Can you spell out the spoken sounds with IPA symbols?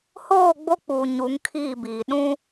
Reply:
h oː˦˨ ɡ͡b o˦ k͡p uː˨ ɲ u˨˦ ŋ kʰ iː˦˨ b iː˨ ɗ ũ˦

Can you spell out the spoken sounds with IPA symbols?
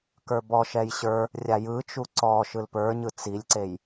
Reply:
k ə˞ b ɔ ʃ ɛ j ɕ ə˞ | rʲ a j ɯ t͡ʃ u ǀ ɔ ʃ ɯ l p ə˞ ɲ ɯ t͡s i lʲ ǀ e j

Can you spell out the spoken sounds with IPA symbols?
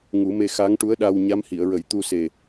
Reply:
ŋ u˨˩˦ m e˧ x a˧˥ ŋ ʈ u˧˥ ə̯ ɗ a˧ w ɲ a˧˥ m h i˨˩˨ ə̯ ɹ ə˨˩˦ j t̪ u˧ s e˨˩

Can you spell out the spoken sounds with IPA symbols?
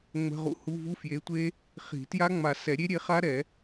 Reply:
ŋ͡m ə̤˧˥˧ ʁ ṵ˦˥ h u˧˥˧ v u˧˥˧ f j e˨˥ tʷ e˦˥ | χ i̤˨˩˦ t j a˦˥ ŋ͡m a˨˩˦ s ɛ˨˩˦ ɾʲ e˦˥ ɾʲ e˨˥ χ a˦˥ ɾ ɛ˨˩˦

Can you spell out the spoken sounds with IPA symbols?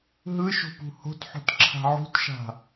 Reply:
ɦ ɯ ʃ o̤ p ṳ h o̤ t ħ o̤ t ǁʰ a̤ ʕ ṳ t ʃ a̤

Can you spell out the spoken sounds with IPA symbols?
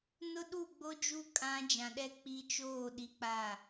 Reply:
n ʊ˦ ɗ u˦˨ ɡ͡b o˦ d͡ʒ u˦ kʼ ã˦ d͡ʒ ã˨ ɗ ɛ˦ k͡p i˦ t͡ʃ oː˦˨ ɗ i˦ k͡p a˦˨

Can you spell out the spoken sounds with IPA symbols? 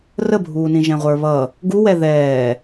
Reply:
r ə bʱ uː n ĩ ʒ ɛ̃ ʁʷ ə˞ β ʌ | ɡ u w ɛ ð ɛː

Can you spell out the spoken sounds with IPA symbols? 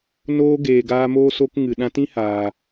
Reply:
n oː˧ ɡ eː˨ ɡ aː˧ m oː˦ s oː˦ k ŋ ɨ˨ ɗ ã˦ t ĩ˦ h aː˨

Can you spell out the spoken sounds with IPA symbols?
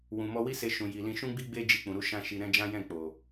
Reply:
w ũ˨ m ɔ˧ w i˦ s e˧ ʃ ũ˨ j i˨ l ĩ˧ ʃ ũ˦ ɡ͡b i˦ ɡ͡b e˦ d͡ʒ i˧ k͡p ũ˨ ɾ u˨˦ ʃ ã˦ ʃ i˧ ɾ ɛ̃˦ d͡ʒ ã˦ j ɛ̃˦˨ k͡p o˨

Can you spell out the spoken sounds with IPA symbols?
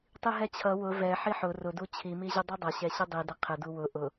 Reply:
tˤ i ɦ ɛ t͡ɕʰ ʌ w ʊ v ɛ ħ i ħ ʊ r ʊ d u t͡ɕʰ i m i ʑ ʊ dˤ i dˤ ʌ ɕ ɛ ɕ ɪ dˤ i d ɪ qʰ ɪ d u w ʊ ʔ ʊ

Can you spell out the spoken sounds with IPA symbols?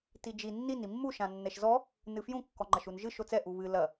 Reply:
t i d͡ʒ i nː i n i mː u ʃ ã nː ɛ ʃ z ɔ | n ɨ f j ũ kː ɔ ŋ͡ǃ ɐ ʃ u n ʒ ɨ ʃ o t͡s ɛ ʔ u β ɨ l ɐ

